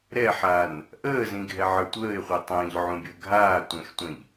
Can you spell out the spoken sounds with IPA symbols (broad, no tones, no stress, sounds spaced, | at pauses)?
ɾ ɛ ħ aː n | ʔ əː z ĩ ɡʱ ɛ ʕ ə˞ tʷ əː ɪ̯ χʷ e tˤ ə̃ː ʎ ʕ ũ bʲ əː ɡʱ aː tʷ ɛ̃ x tʷ ɛ̃ ʎ